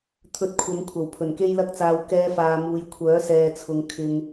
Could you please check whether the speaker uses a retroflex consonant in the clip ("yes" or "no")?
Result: no